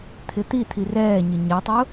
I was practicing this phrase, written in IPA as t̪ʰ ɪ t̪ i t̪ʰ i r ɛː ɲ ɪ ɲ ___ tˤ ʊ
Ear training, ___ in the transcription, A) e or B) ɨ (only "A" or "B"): A